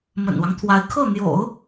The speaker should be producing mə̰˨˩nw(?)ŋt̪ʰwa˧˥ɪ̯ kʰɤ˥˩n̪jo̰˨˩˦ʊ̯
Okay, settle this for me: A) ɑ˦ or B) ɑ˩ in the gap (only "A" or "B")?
A